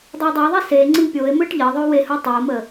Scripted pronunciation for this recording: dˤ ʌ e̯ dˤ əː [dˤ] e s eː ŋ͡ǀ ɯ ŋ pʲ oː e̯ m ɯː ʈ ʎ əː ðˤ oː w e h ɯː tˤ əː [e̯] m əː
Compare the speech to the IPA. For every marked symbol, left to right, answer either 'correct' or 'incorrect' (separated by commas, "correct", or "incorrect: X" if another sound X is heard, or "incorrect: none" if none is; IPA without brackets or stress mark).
incorrect: ðˤ, incorrect: o̯